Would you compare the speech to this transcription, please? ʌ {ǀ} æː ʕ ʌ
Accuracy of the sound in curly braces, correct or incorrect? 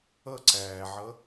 correct